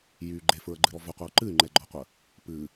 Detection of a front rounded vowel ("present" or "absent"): present